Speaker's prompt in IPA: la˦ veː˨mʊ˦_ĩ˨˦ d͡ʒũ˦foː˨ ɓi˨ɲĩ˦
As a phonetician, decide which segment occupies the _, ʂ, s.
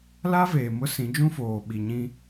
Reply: s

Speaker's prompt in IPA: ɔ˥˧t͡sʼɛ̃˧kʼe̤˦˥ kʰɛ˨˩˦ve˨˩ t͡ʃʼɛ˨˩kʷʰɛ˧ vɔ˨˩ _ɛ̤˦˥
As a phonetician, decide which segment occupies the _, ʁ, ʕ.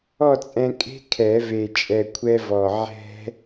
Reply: ʕ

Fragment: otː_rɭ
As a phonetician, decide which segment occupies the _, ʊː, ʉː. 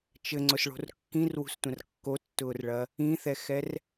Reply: ʊː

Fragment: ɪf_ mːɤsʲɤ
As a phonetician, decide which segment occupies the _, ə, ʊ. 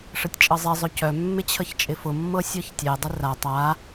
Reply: ʊ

